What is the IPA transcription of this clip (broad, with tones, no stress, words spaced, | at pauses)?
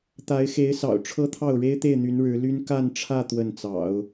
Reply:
t̪a˧˥ɪ̯xe˧˥ɪ̯sɑ̰˨˩ʊ̯ ʈ͡ʂʰɤ˥t̪ʰɑ˥˩ʊ̯ ɻe˥ɪ̯t̪e˥˩ɪ̯n̪y˧˥n ɻɻ̩˧˥ly˥n ka˥˧nʈ͡ʂʰä˥˧ t̪wə˥˩nt͡sɑ̰˨˩˦ʊ̯